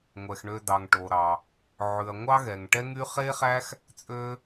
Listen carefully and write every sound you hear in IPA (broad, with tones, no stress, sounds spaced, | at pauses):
ŋʷ ɛ˩ x ɳ ø˨ d ɑ˩ ŋ ʈ o˩ ɾ ɑ˩ | ʕ ʉ˩ ɐ̯ ŋʷ ɑ˦ ɣ ɛ˩ ŋ ʈ ɛ˦ ŋ y˦ χ e˦ χ æ˦ x | t͡sʼ ø˦